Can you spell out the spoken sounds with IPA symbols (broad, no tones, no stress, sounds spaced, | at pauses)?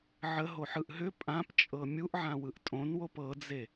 ʕ ə ɦ o ħ ɯ ʔ ɦ ʏ pʼ ã p t͡ʃʼ ɤ mʲ u ʔ ʕ ã w ɯ ʔ tʼ õ n w o p ɤ d͡z e